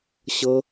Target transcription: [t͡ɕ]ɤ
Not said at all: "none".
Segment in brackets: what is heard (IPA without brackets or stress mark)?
ɕ